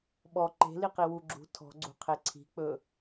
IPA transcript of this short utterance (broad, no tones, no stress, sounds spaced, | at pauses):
ɓ ɔ ǃ e̤ l i q i w u ɡ͡ǁ ṳ tʰ ɔ̤ ɡ͡ǀ ṳ qʰ e ǀʰ i̤ k͡p ɵ